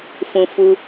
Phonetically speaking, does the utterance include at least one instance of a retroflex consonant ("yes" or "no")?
no